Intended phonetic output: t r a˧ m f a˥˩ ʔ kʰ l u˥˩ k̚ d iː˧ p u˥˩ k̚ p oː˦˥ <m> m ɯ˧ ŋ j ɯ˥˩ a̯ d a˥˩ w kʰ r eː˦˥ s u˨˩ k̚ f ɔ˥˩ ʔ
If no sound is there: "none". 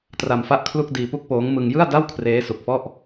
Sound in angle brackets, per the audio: ŋ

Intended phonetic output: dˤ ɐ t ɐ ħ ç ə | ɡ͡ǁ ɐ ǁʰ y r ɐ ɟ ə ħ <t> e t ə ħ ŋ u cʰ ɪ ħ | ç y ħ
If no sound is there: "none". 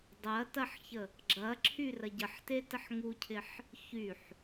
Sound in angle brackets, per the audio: t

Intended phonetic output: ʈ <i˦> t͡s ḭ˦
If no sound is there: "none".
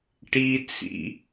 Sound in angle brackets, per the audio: i˦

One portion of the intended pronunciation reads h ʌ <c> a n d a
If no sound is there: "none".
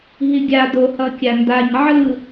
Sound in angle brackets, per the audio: kʲ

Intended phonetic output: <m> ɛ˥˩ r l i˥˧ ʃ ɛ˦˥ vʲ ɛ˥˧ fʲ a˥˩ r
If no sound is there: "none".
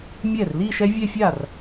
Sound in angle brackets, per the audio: mʲ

